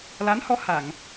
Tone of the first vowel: rising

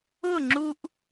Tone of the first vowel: falling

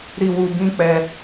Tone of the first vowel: low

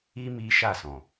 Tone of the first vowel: high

